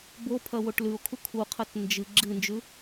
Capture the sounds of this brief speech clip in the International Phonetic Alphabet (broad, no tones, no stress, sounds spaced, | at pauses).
b o pʰ ɐ w o ʈ l ʉ o̯ kʰ u kʰ u qʰ ɐ t n d͡ʒ ɨ ɡ͡ǁ ɨ n d͡ʒ ʉ